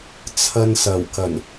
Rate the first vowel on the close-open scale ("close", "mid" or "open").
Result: open